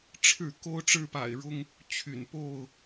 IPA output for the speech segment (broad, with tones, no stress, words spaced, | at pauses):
ʈ͡ʂʰɻ̩˥˨ ko˦ʊ̯ʈ͡ʂɻ̩˥˨ pa̰˨˩ɪ̯ ɻʊ˦ŋ | t͡ɕʰy̰˨˩npo˥˨ʊ̯